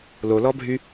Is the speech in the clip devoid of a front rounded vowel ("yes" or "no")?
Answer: no